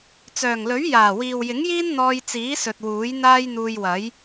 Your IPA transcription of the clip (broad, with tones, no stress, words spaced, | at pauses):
t͡sœː˨˩ŋlɵ˨˥ɥ jaː˨˩wiː˨w jɪ˨˥ŋjiː˥n n̪ɔː˧jt͡siː˨˥sɵ˨t̚ wuː˨˥j n̪aː˥jn̪uː˧jwɐ˨˥j